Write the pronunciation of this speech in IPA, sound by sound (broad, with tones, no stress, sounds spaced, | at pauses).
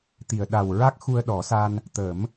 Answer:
t̪ i˨˩˨ ə̯ ɗ a˨˩ w ɹ a˦˥ k̚ x u˧ ə̯ ɗ ɔ˨˩˦ s a˧ n | t̪ ə˨˩˦ m